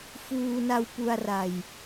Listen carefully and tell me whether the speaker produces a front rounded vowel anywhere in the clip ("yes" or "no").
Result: no